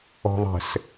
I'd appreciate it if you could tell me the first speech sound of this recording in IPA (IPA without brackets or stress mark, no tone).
ɔ̤